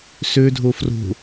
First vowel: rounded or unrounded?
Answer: rounded